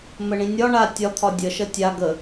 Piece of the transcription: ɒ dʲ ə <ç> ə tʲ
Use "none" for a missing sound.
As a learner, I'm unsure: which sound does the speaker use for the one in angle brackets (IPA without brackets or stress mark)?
ʃ